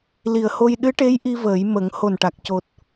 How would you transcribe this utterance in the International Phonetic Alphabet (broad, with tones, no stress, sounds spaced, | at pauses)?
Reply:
l i˨˩ ə̯ h o˧ j ɗ ɨ˧˥ ʈ e˧˥ j ʔ i˧ v əː˨˩˦ j m ə˨˩˦ ŋ h o˨˩ n ʈ a˨˩ k̚ c o˨˩ t̚